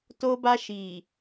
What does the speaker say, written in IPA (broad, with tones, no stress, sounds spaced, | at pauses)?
t o˦ b a˦ ʃ iː˨